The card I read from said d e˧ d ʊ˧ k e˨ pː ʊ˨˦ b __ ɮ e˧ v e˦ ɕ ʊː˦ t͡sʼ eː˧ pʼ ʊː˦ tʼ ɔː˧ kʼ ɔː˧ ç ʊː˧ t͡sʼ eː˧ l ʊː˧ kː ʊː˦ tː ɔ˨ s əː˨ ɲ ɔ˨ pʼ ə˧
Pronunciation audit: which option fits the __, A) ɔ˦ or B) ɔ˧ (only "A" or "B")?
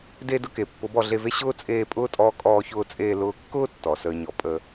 B